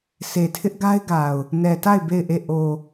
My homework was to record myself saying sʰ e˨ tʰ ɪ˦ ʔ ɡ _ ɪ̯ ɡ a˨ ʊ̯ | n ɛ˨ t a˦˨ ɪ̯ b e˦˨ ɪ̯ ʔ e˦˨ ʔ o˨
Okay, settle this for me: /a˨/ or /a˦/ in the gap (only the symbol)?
a˦